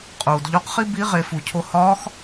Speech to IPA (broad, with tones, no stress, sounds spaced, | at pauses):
qʼ uː˩ d ʎ o˧˥ q χ i˥ b i˧˥ ʁ e˩˧ f u˩ cʰ o˧ h ɒː˧˥ x